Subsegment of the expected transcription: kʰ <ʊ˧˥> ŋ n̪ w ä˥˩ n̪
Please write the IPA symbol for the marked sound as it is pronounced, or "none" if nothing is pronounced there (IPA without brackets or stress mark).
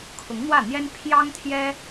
ʊ˧˥